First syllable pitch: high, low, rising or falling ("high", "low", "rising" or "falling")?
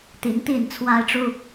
rising